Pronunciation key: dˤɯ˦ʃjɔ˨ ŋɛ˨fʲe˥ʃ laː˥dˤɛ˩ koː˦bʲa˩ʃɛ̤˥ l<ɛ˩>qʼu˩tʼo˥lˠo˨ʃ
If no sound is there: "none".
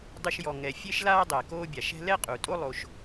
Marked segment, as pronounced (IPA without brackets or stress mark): ɛ˥